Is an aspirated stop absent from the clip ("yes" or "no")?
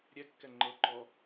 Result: yes